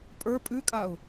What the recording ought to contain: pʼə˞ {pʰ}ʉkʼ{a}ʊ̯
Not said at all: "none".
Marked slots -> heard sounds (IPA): pʼ, a

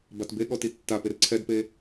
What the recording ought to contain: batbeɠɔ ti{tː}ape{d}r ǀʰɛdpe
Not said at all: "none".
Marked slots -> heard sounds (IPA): tː, none

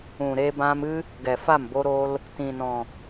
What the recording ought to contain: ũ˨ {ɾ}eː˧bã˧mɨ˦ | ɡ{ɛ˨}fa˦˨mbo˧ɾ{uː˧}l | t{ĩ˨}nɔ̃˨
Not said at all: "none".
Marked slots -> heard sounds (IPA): ɾ, ɛ˨, oː˧, ĩ˨

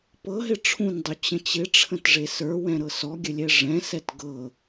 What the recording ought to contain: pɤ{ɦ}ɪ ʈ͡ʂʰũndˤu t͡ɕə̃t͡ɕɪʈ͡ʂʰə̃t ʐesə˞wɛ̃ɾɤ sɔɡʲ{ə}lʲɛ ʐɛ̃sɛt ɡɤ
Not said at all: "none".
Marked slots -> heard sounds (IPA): ɦ, ə

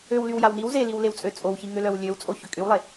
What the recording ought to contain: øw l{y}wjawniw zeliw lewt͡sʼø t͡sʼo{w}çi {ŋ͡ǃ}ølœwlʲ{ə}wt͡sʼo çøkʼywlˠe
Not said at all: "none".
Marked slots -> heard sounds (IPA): y, w, ŋ, ø

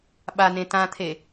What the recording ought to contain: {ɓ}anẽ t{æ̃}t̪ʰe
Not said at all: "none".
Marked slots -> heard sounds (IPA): ɓ, ã

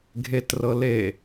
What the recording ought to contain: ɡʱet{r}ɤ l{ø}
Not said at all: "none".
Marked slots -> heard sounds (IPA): r, e

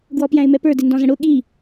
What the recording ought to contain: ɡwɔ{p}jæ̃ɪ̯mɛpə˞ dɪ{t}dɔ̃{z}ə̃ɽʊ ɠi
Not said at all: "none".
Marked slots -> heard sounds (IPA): p, n, z

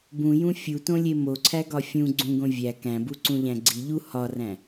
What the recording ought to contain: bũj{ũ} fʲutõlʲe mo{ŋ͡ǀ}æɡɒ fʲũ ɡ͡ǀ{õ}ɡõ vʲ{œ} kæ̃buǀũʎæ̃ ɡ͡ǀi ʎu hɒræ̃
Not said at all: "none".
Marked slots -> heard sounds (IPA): ũ, ǀʰ, ũ, æ

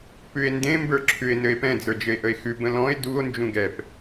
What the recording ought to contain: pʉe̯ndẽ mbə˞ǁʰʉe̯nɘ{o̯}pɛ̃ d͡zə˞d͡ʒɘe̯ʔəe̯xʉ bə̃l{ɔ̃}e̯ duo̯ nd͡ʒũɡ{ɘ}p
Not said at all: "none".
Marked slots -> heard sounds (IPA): e̯, ɔ̃, ɛ

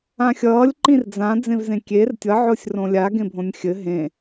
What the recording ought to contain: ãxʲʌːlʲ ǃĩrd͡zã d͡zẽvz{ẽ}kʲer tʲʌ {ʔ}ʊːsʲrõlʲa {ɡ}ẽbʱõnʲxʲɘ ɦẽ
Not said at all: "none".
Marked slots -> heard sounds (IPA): ẽ, ʕ, ɡ

